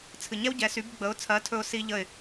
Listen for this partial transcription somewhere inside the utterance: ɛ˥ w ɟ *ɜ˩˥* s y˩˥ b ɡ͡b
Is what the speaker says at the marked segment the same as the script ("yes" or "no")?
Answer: no